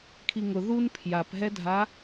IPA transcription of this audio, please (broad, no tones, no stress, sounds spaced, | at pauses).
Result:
kʰ i ŋ ʊ ð u n pʰ j a p ɦ ɛ dʱ a